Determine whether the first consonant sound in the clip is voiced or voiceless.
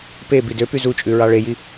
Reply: voiceless